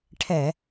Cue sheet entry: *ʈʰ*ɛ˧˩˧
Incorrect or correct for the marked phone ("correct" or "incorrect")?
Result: correct